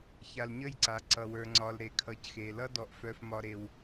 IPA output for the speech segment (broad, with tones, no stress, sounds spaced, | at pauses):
ç a˨ l ɲ ə˦˨ j ǀ a˨ ǀ ʌ˨ w ə˞˨ ŋ͡ǀ ɒ˨ l ɾ e˨ kʰ ʌ˨ c x e˨ l ʌ˦ d ɔ˦ ʔ f œ˦ f m ɒ˦ ɾ e˦ w